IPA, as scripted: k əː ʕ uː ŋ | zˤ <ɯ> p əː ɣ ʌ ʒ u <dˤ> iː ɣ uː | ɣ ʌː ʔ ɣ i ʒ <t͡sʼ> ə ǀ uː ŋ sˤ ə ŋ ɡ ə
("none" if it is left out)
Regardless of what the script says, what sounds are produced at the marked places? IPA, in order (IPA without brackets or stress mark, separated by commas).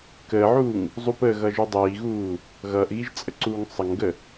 u, dˤ, t͡sʼ